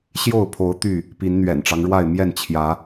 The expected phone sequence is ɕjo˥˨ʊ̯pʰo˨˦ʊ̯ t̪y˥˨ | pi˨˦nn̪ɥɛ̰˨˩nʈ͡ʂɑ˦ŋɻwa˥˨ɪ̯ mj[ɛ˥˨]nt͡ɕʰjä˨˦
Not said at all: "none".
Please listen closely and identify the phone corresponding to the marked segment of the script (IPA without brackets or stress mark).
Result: ɛ˥˨